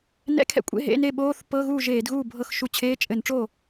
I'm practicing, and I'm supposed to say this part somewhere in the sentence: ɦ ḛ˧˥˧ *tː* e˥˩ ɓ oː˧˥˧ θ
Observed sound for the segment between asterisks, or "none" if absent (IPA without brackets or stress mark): n